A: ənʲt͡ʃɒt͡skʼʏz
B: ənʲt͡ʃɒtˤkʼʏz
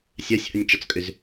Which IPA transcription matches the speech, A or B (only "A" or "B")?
A